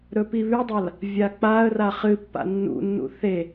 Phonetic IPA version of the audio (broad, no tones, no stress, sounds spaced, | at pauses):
ɾ ɵ p i β ʉ dˤ a l | vʲ a k͡p a ə̯ r a χ ɨ pː a̰ nː ṵ nː ṵ θ e